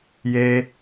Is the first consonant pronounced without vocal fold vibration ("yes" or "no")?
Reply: no